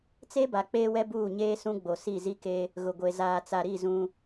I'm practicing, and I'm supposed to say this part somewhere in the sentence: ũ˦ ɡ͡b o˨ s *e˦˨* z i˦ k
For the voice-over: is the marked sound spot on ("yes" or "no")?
no